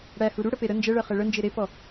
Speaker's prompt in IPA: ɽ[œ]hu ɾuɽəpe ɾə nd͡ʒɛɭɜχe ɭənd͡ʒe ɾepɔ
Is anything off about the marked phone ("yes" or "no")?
yes